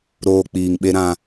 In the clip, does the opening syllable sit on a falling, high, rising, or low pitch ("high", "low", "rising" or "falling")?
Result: low